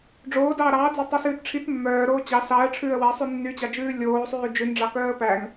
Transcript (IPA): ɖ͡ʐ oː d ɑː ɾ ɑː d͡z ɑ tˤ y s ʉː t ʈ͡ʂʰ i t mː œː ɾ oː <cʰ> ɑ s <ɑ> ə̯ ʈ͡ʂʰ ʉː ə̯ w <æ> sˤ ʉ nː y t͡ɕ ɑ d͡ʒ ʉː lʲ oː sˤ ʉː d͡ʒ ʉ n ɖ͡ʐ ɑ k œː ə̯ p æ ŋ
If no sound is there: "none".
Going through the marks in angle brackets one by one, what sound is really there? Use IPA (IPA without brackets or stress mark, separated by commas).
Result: t͡ɕ, ɑ, æ